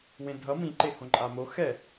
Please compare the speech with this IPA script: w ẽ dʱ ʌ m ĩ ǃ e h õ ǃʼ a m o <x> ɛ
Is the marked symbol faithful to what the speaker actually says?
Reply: yes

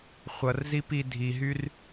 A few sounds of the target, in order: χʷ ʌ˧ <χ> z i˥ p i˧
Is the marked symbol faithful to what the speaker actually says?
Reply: no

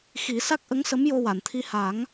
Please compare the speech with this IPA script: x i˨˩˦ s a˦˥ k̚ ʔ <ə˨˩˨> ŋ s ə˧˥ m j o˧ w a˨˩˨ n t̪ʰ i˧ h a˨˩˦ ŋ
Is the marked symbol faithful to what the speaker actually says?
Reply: no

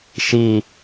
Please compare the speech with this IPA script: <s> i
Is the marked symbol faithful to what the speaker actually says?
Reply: no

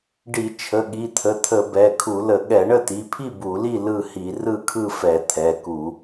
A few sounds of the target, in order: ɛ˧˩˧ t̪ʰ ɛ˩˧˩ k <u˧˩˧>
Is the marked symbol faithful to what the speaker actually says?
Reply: yes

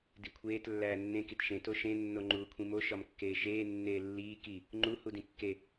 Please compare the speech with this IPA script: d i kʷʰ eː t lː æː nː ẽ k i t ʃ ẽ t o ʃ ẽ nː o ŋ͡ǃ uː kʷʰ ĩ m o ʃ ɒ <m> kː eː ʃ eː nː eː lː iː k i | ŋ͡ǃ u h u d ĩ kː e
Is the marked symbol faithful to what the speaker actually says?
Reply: yes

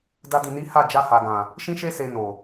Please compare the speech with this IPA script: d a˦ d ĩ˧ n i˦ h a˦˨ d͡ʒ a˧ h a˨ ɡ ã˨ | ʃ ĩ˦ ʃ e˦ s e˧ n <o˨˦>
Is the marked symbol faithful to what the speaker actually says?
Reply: no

